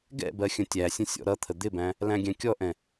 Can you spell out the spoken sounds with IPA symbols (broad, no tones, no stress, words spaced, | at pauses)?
ɡɛ̰bɜ xʲə̃tʲæsʲə̃ sʲɔ̰ɾʌt̪ʰə d̪ɪbæ̃ | læ̃ɡʲæ̃kʲɔʔɛ̃